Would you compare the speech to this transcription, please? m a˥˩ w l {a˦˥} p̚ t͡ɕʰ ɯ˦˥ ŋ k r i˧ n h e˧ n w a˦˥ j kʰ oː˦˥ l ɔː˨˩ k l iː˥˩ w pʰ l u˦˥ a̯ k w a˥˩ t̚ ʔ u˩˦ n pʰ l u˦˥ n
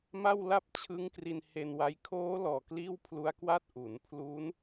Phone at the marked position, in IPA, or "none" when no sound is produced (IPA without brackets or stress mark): a˥˩